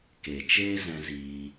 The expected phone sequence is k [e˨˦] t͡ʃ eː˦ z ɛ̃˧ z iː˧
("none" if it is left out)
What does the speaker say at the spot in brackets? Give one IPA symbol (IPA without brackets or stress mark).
e˨